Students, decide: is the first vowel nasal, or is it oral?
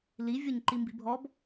oral